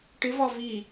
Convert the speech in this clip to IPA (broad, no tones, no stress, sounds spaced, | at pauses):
ʈ ɪ v ɒ v i